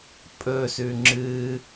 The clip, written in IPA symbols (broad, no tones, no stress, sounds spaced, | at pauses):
pʼ ɵ s ʉ ŋ͡ǁ ɨ